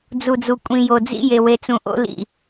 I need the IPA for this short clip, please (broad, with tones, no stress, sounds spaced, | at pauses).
d͡z u˨ d͡z u˨ kʷʼ ĩ˨ j o˨ d͡z ḭ˦ j e˨ w e˨ t͡s ũ˨ ʔ o̰˦ l ḭ˨